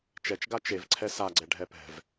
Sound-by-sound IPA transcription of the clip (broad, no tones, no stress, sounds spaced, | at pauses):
t͡ʃ ɛ t͡ʃ ɡ a t͡ʃ e v ǀʰ ɛ s a ɡ͡ǀ ɛ ɖʱ ɛ p ɛ̤ v